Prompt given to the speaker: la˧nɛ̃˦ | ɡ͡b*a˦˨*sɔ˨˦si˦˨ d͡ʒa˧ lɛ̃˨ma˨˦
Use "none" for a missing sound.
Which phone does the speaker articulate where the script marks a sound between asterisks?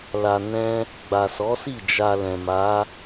a˨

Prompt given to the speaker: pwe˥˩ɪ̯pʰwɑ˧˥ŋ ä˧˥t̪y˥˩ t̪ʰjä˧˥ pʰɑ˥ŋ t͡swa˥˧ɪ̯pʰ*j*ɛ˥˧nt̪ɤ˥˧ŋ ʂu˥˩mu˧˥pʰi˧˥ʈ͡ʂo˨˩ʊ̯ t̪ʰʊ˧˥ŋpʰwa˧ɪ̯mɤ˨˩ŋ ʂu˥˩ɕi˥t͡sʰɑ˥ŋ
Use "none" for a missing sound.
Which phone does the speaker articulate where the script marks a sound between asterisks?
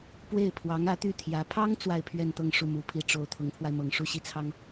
ɥ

